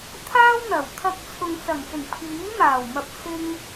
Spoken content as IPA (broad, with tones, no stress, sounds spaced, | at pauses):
t̪ʰ aː˥ w n̪ ɐ˨˩ w t̪ʰ ɐ˧ k̚ t͡sʰ ʊ˨ ŋ t͡s ɐ˨˩ ŋ s ɪ˨˩ ŋ pʰ iː˨˥ m aː˨˩ w m ɐ˨ p̚ s ɪ˧ ŋ